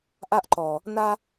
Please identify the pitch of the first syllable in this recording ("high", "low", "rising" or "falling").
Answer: high